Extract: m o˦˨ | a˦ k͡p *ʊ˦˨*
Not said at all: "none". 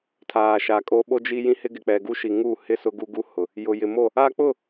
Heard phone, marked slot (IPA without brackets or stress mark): ʊ˦˨